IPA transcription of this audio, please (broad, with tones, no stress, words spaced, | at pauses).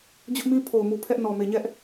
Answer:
d͡ʑʊ˦ʔmĩ˦ pʰo˨ʊ̯mu˨ pʰɛ˦ʔnɔ˨me˨ɲɛ˦ʔ